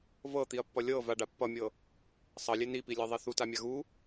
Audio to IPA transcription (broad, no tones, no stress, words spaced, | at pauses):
vɤt̪iɐ̯pːʌ lʲɤ vaɖa pːʌmʲɤ | sˤʌlʲe nipilʲɤðˤi θutamʲa ɣu